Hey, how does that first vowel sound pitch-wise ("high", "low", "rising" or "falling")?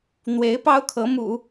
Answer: rising